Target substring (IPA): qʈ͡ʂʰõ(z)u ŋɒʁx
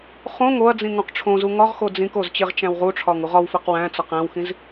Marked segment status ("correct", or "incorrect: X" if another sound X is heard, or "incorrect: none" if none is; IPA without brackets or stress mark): correct